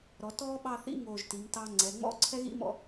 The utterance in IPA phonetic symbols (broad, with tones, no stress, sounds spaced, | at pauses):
ɾ ɔ˩˧ t ɔː˥ ɓ ɑ˥˧ θ ḭ˥ ŋ oː˧˩ ʒ t i˩˧ m t ɑ˥ ŋ͡ǀ ɛ˩˧ ŋ͡m ɔ̰˥ ǀʰ ɛ˥ ɣ ḭ˥ m ɔ̰˧